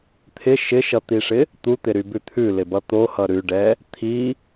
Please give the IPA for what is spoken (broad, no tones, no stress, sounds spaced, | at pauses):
t̪ʰ ɪ ʃ ɪ ʃ ʌ t̪ i ʂ ɪ | t̪ u t̪ ɪ ɾ y b ʉ t̪ʰ ʉ l ɪ b ʌ t̪ o h ʌ ɾ ʉ ɖ ɛ | t̪ʰ i